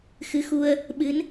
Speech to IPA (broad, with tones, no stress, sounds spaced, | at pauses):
x ɨ˨˦ x u˧ ə̯ | ɓ ɨ˨˦ n